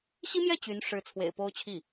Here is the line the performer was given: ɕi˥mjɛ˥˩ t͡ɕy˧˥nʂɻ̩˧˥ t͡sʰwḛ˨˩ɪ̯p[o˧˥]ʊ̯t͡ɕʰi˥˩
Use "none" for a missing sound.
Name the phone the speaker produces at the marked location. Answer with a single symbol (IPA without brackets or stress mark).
o˥